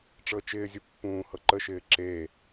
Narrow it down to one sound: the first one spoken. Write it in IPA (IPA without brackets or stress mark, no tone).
ʈ͡ʂ